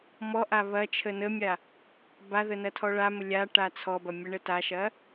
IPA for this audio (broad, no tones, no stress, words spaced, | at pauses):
mɔʔa βɐ t͡ʃʰənəmʲa | baðə nɐtʰɔɭamə lʲa ʈat͡sʰɔbɐ mʲəɳətaʃɐ